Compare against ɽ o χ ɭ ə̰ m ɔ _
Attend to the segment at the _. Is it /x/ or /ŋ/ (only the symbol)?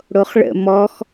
x